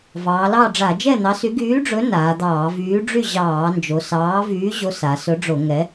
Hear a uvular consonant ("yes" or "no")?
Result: no